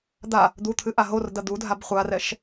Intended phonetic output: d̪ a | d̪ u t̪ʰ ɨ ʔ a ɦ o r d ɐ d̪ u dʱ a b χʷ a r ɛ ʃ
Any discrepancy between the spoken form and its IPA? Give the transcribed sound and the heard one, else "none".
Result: none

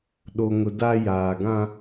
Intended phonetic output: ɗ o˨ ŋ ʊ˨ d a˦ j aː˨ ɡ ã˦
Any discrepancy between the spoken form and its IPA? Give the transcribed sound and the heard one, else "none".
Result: none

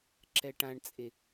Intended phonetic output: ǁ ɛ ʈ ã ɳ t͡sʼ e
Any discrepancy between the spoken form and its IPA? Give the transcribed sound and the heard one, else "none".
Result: none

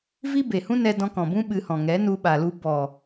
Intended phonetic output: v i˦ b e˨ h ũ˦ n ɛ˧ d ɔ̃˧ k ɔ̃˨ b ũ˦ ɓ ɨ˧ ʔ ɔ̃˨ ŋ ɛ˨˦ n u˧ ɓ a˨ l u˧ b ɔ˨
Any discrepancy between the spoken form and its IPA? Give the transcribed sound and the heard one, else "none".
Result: ʔ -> h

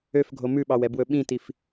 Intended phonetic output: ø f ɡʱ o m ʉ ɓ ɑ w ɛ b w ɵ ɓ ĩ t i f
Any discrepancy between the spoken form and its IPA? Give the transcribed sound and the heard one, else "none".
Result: none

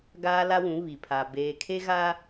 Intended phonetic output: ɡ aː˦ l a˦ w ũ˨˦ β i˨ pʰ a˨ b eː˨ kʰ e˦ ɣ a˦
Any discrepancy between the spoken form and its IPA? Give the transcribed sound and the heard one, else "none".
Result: none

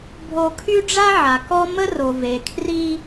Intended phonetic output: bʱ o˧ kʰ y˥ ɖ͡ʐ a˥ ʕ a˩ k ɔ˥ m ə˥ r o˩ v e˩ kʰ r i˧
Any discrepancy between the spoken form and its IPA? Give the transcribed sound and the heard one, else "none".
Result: none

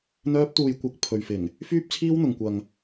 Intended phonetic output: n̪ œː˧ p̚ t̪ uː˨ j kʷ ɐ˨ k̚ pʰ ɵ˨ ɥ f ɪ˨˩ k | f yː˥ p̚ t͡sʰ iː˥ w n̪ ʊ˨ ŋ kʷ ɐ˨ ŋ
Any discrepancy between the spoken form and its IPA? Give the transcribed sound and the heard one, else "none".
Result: k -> ŋ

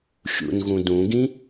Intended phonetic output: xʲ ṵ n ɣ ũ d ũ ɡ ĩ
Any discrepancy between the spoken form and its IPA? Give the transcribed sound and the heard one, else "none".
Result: none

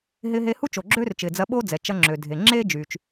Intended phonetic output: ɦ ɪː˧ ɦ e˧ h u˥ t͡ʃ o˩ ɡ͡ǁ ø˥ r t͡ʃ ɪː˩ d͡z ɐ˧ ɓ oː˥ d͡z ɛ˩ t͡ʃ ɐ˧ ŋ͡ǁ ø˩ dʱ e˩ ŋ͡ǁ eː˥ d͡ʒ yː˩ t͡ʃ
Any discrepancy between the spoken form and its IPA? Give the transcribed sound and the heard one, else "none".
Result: none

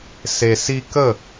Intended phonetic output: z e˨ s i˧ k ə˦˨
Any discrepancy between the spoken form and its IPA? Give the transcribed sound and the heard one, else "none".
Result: z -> s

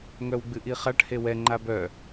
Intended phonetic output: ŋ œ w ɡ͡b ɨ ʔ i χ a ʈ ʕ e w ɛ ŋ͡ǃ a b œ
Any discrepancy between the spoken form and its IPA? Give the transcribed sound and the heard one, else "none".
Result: ʕ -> h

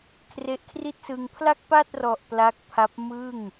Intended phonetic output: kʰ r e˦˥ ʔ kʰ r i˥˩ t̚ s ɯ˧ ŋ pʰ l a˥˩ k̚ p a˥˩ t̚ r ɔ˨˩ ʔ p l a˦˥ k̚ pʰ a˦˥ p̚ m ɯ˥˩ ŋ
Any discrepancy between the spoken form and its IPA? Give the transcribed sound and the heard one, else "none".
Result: none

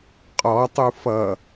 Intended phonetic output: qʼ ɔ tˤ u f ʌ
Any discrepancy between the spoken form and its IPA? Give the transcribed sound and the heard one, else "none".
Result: none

